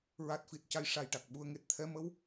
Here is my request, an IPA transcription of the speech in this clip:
ɹ a˨˩ t̚ f i˨˩ t̚ c a˨˩ j ʂ a˨˩ j ʈ a˨˩ k̚ ɓ u˧ ə̯ ŋ e˨˩ t̚ t̪ʰ ɛ˧ m ə˧˥ w

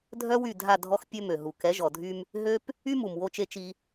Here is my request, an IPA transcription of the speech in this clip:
dʱ œ˦ w y˦˨ dʱ a˦˨ dʱ ɔ˦ x pʲ ø˦ m ø˨ ɦ u˨ k ɛ˨˦ ʒ ɔ˨ dʱ y˦ m | ɦ ø˦ p | y˦ m u˨ m w o˦ t͡ʃ e˦ t͡ʃ i˦

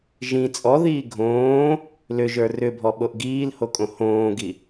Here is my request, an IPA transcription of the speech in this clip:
ʒ ĩ t͡sʼ ɔ ð iː ɡʱ õː | l ʏ ʒ ə˞ r ʏ bʱ ɔ ɓ o ʔ ɡ iː l h o kʼ õ h õː ɡ i

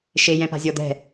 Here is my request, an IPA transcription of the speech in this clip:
ʃ e j ɛ̃ p a̤ zʲ ɔ d̪ ɛ̤

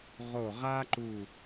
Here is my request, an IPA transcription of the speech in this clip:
ʁ o˧˩ ʁ a˥ ǃ u˧˩

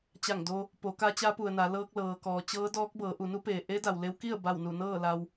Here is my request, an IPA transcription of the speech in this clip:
t͡ɕ a˧˩ ŋ d o˧ | p o˩˧ k a˧ t͡ɕ a˧˥ p u˩ ə̯ n a˩˧ l ɤː˧ k̚ l ɤː˩ k ɔː˩ t͡ɕ ɤː˧˥ d ɔː˧˥ k̚ b ɤː˩˧ ʔ u˩˧ n u˧˥ p eː˩ ʔ e˧˥ d a˩ w l e˧˥ w k i˥˨ ə̯ b a˧˩ w n u˧˩ n ɤː˥˨ l a˧ w

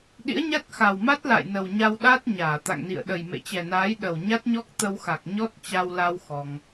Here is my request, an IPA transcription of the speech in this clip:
ɗ ḭ˧˥ ə̯ ɲ a˦˥ t̚ x a˨˩ w m a˦˥ t̚ l a̰˧˨ j n ə˨˩ w ɲ a˧ w ɗ a˦˥ t̚ ɲ aː˧˩ t̪ a̰˧˨ ŋ n ḭ˧˨ ə̯ ɗ ə˨˩ j m ḛ˧˨ t͡ɕ ɛ˨˩ n aː˨˦ j ɗ ə˨˩ w ɲ a˦˥ t̚ ɲ ɔ˦˥ k̚ t̪ ə˧ w x a˨˩ k̚ ɲ ɔ˦˥ t̚ t͡ɕ a˧ w l a˧ w x ɔ˧ ŋ

